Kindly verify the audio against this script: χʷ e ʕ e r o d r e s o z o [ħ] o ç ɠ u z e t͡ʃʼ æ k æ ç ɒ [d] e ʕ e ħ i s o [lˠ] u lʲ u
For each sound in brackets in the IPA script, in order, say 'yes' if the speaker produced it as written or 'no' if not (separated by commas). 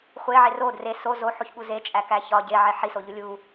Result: yes, no, no